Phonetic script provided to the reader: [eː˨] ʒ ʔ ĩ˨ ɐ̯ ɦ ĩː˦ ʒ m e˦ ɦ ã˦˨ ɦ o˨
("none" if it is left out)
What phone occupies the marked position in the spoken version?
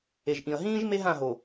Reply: e˨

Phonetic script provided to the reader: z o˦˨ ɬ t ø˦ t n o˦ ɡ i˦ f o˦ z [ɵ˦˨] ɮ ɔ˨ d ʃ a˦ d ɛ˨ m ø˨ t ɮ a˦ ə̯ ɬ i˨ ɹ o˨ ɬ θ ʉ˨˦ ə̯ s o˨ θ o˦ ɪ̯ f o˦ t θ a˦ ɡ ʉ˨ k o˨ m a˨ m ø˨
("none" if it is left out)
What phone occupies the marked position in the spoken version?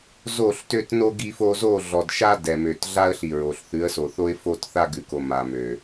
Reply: o˦˨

